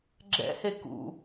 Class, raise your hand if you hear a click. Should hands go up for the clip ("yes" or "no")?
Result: yes